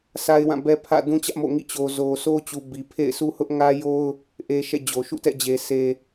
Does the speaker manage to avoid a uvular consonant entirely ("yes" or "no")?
yes